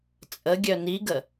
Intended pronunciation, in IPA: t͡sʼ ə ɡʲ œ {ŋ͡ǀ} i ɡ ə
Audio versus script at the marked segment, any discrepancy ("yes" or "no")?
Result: yes